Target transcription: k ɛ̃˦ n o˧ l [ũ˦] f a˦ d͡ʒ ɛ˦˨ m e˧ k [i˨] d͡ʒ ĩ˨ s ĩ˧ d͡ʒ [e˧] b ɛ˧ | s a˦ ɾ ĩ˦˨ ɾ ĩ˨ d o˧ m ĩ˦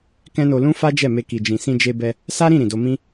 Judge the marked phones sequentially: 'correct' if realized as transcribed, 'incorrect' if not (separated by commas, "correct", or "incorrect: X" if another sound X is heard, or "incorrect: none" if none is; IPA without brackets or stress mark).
correct, correct, correct